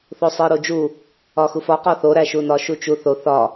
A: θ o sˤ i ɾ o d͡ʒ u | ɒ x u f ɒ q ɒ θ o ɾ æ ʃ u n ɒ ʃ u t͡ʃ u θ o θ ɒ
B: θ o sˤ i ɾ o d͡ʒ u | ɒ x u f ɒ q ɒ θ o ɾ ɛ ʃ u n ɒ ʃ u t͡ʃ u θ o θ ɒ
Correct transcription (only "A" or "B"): A